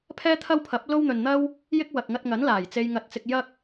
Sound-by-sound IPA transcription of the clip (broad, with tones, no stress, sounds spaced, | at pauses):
pʰ ɛː˥ t̪ʰ ɐ˥ w pʰ ɐ˨˥ p̚ l o˥ w n̪ ɵ˨ n n̪ ɐ˥ w | j ɪ˥ k̚ w ɐ˨ k̚ ŋ ɐ˧ t̚ ŋ ɐ˨˥ n l aː˨˩ j t͡s e˧ j ŋ ɐ˧ t̚ t͡s ɪ˧ k̚ j ɐ˥ k̚